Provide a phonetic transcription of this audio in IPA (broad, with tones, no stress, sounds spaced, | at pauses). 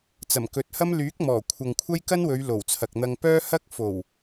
t͡s ɐ˨˩ m k ɵ˨˥ t̚ h ɐ˥ m l yː˨˥ k̚ m ɔː˨˩ kʷʰ ɐ˨ ŋ kʷʰ ɐ˥ j k ɐ˥ n w ɵ˨˧ ɥ l o˨˩ w t͡sʰ ɐ˨ k̚ n̪ ɐ˧ ŋ p œː˥ h ɐ˥ k̚ f o˨˩ w